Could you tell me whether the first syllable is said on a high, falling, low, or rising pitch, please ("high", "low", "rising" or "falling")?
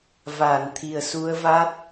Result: low